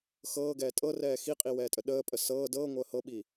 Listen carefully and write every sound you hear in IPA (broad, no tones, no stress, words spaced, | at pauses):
xɤːɡɛː tʼɤrɛː xiqʼiwɛːtʼə ɗəːpʼə sɤː dɤːŋʷəː hɤɓi